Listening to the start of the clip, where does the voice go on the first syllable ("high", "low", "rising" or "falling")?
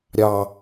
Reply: low